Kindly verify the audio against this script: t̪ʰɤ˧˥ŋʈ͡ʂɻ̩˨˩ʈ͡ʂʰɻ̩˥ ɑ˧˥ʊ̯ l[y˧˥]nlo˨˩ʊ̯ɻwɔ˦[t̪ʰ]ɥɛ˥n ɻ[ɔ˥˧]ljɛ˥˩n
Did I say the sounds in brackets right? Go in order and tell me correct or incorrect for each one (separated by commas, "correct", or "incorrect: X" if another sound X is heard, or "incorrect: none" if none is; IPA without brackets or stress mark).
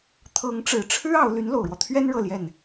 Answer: correct, correct, incorrect: ɤ˥˧